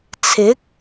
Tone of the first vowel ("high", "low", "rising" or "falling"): rising